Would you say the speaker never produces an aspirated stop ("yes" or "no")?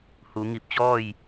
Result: yes